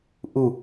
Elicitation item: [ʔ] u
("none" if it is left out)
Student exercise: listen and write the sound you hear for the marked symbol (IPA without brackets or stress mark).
ʔ